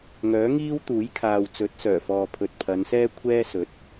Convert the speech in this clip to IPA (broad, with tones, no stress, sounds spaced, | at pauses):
ŋ œː˨˥ ŋ iː˥ w t̪ uː˨˥ j kʰ aː˨ w t͡s ɵ˨˥ t̚ s œː˨˩ f ɔː˨ pʰ ɵ˨ t̚ pʰ ɐ˨˧ n s ɛː˥ kʷʰ ɛː˥ s ɵ˨˥ t̚